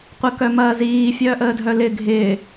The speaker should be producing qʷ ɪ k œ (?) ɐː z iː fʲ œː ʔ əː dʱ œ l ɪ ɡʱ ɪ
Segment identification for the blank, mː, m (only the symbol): m